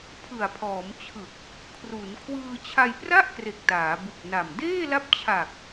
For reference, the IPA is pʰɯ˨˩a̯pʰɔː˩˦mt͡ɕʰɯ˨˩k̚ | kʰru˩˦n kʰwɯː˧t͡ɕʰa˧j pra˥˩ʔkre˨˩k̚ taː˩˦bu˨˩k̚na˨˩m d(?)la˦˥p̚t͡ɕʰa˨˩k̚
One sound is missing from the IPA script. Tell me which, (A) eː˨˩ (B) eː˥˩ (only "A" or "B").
B